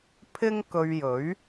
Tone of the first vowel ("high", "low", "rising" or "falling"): high